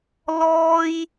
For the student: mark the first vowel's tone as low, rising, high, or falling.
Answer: high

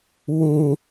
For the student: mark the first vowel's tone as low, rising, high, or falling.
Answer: low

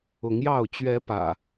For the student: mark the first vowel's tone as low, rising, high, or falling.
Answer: rising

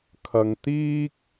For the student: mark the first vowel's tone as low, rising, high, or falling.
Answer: low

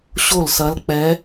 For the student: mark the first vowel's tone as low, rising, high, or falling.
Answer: falling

